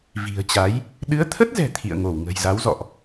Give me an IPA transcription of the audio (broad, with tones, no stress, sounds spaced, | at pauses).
v i̤˨˩ ə̯ t͡ɕ a˨˦ j | ɗ ɨ˨˦ ə̯ t̪ʰ ə˦˥ t̚ z ɛ̤˨˩ t̪ʰ ḭ˧˨ ə̯ ŋ o˧˩ w ŋ ə̤˨˩ j z a˨˦ w z ɔ̰˧˨ ʔ